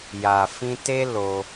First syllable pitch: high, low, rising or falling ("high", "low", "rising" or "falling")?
low